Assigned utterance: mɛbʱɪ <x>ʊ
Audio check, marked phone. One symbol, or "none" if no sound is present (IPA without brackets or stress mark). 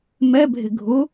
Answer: ɡʱ